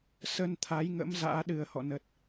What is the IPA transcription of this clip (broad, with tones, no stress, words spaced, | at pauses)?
sə˧nt̪ʰa˨˦jŋə̰˧˥m za̰ː˧˥ɗɨ˨˩ə̯hɔ̰˧˨nə˨˩t̚